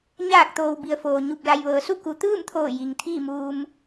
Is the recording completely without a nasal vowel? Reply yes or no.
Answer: yes